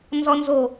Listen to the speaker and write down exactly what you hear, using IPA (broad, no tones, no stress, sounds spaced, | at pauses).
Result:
n z ɔ n z o